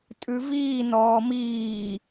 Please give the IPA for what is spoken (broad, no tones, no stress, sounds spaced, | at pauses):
tʼ ʉ v iː n ɔː m iː